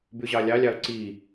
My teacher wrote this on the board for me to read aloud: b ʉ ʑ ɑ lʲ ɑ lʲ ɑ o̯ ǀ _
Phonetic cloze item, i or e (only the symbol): i